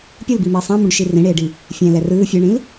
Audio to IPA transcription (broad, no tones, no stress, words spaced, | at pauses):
pʲolbimiː sˤãmũɖʃi rĩɽeːɖi | fʲɛ̃lɛ rɯː fʲeɳĩl